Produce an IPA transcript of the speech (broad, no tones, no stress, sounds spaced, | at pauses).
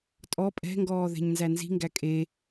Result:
tʼ ɔ pʼ ɛ̤ ŋ ɡ ɔː ð ɛ̤ ɲ n z æ n z i̤ ŋ ɡ æ kʼ e